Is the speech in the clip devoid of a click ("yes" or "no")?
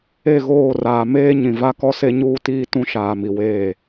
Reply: yes